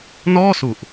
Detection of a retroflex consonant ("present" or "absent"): absent